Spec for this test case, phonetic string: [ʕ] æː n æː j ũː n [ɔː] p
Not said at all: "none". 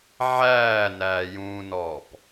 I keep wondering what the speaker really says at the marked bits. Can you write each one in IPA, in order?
ʕ, ɔː

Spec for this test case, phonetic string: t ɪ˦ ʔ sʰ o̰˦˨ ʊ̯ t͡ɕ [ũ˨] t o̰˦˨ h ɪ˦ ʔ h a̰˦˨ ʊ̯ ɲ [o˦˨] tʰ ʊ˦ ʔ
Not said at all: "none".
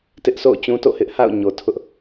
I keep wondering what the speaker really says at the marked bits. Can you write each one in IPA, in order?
ũ˦, o˨

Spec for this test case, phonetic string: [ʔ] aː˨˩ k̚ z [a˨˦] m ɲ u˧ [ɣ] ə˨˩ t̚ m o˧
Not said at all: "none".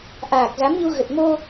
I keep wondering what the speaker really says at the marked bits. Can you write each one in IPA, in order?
ʔ, a˨˦, ɣ

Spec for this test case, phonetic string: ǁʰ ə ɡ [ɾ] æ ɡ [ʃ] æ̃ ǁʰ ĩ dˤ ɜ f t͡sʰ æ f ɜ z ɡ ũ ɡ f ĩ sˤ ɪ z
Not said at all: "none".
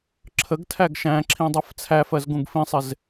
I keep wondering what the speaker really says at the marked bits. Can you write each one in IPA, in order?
tʰ, ʃ

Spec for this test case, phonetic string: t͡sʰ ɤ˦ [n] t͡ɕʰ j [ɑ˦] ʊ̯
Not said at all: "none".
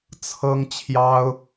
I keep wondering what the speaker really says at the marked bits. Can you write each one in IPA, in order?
ŋ, ɑ˦

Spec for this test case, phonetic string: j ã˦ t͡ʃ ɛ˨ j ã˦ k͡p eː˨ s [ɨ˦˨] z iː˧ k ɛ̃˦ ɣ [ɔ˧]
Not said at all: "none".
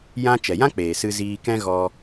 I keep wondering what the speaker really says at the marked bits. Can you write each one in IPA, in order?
ɨ˧, ɔ˧

